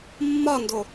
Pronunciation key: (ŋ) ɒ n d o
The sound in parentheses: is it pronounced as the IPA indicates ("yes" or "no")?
no